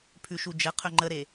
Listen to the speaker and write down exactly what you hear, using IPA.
pʰ ʉ ʃ u d͡ʒ ə qʰ ɵ ŋ͡ǃ ə ɾ e

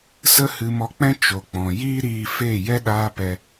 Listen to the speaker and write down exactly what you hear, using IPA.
s ə˦ h ɨ˧ m ɔ˧ k͡p ɛ̃˦ t͡ʃ o˨ k͡p ɔ̃˨ j iː˦ ɾ iː˧ f eː˦˨ j ɛ˦ ɗ aː˦ p ɛ˧

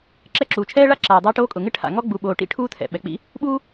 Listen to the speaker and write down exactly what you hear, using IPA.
ǁ ɛ˦ ǁ uː˨ t͡ʃʰ ɛː˥ ɭ a˥ ǁ aː˨ dˤ aː˦ ʈ oː˦ kʼ ʊ˨ ŋ ɪ˥ ʈʰ a̰˨ ŋ ɔ˥ ɡ͡b u˨ ɓ oː˨ ʈ ḭ˥ ʈʰ uː˦ tʰ ɛ̰˩ ɓ ɛ˩ k͡p ḭ˦ | ɓ uː˦

